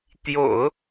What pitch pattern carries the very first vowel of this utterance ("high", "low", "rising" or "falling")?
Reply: low